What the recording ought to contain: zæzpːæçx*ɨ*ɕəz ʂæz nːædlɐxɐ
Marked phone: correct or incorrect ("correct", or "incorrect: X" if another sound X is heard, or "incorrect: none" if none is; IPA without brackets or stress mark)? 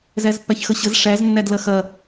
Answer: incorrect: ə